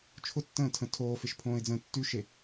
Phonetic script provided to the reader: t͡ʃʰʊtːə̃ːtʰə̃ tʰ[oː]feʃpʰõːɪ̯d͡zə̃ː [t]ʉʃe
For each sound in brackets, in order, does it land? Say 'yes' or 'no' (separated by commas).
yes, no